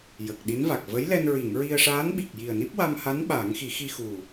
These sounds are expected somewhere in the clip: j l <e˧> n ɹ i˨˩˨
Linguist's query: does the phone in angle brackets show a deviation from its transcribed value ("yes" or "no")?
yes